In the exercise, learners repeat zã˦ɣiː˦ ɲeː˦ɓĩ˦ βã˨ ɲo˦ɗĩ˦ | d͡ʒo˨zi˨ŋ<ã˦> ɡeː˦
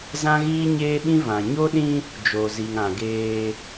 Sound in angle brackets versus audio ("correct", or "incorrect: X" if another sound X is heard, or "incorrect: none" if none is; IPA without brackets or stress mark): incorrect: ã˨